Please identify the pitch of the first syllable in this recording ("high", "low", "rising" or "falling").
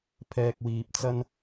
low